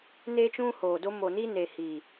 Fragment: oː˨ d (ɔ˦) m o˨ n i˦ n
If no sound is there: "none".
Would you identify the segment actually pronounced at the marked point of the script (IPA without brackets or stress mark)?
o˦